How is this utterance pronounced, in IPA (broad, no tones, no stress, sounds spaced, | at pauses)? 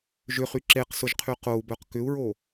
ʒ ʏ χ y ǁ e q s ʊ ʒ qʰ y q o u̯ b œ q k ʏ u̯ ɹ o